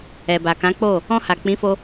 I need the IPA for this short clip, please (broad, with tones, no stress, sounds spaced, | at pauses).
ɛ˨ b a˨ k ã˨˦ k͡p o˦˨ | ɔ̃˧ h a˨ k͡p ĩ˨˦ f o˧